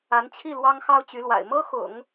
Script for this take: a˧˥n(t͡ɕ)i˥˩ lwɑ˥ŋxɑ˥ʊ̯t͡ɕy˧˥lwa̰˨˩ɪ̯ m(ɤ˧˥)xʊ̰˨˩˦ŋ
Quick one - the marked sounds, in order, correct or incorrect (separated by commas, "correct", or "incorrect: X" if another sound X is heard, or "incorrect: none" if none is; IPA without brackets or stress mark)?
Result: incorrect: t͡ɕʰ, incorrect: ɤ˥